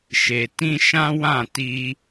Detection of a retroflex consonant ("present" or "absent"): absent